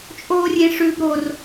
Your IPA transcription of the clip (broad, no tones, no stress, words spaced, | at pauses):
t͡ʃʼoːrʲẽʂʉb ɾor